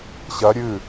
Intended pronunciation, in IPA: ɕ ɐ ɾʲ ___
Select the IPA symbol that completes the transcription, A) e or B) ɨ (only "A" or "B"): B